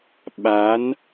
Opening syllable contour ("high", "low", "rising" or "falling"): rising